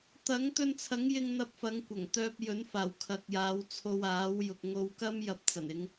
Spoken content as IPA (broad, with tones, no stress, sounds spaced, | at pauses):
t̪ ɐ˨˥ ŋ t̪ ɵ˧ n t͡sʰ ɐ˨˥ ŋ j ɪ˧ ŋ n̪ ɐ˧ p̚ f ɐ˨˧ ŋ kʷ ɐ˨˩ ŋ t̪ œː˧ p̚ j ɵ˨˥ n f aː˨˩ w kʰ ɐ˨ k̚ j aː˨˧ w t͡sʰ o˧ w aː˨˥ w j ʊ˨ k̚ ŋ o˧ w k ɐ˥ m j ɐ˧ p̚ t͡s ɐ˨˩ n ɪ˨˧ ŋ